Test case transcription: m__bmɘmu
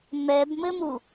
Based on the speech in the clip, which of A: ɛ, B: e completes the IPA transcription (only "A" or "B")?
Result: A